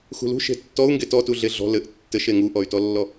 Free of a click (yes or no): yes